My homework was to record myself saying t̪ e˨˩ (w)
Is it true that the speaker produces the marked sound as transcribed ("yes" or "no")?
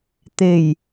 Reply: no